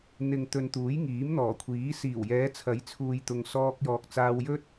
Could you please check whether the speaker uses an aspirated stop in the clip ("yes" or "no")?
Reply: yes